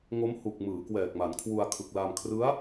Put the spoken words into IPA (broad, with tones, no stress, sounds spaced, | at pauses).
ŋ o˦˥ m h u˨˩ k̚ m ɯː˩˦ k w ɛː˨˩ k̚ m a˩˦ n kʰ w u˧ a̯ kʰ ɯ˨˩ k̚ l a˧ m kʰ r ɯ˦˥ a̯